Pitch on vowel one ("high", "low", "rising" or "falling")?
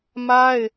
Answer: high